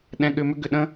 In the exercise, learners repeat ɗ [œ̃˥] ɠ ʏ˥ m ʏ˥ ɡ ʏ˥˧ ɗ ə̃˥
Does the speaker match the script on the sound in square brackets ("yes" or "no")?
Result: no